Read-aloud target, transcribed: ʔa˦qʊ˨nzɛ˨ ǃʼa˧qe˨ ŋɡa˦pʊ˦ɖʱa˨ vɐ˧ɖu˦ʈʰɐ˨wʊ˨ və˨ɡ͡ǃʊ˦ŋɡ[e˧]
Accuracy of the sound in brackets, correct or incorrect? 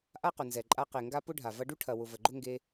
correct